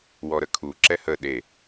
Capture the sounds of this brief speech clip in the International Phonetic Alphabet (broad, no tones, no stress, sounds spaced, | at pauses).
w ɔ ɾ ə kʰ u ǁ ɛ h ə ɗ e